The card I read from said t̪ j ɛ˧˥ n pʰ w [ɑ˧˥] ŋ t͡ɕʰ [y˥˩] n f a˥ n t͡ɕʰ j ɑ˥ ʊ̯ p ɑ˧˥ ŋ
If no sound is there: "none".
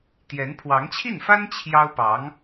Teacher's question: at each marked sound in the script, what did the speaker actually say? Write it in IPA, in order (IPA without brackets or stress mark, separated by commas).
ɑ˧˥, i˥˩